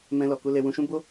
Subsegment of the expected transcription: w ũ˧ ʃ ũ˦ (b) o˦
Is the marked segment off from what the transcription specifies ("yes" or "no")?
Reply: no